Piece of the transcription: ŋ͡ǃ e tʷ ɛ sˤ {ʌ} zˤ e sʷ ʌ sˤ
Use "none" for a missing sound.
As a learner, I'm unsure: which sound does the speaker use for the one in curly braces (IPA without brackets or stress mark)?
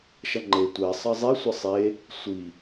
ʌ